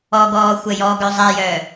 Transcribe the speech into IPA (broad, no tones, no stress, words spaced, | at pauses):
ɔɡɔː xʷɛjɔɡœ zˤɛjœː